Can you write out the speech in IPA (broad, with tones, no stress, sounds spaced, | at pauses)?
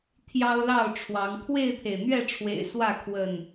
t̪ʰ j ɑ˦ ʊ̯ l ɑ˥˨ ʊ̯ ʈ͡ʂʰ w ɑ˨˦ ŋ kʰ w e˥˨ ɪ̯ t̪ʰ e˩ ɪ̯ n̪ ɥ ɛ˥˨ ʈ͡ʂʰ w ḛ˨˩ ɪ̯ s w ä˥˨ kʰ w ə˥˨ n